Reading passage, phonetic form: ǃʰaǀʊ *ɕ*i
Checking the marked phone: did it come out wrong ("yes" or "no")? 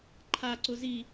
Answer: yes